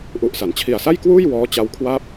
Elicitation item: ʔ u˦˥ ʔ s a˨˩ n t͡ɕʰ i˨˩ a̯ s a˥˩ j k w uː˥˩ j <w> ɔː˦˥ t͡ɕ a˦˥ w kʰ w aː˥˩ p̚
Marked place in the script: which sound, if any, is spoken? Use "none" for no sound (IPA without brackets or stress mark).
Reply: w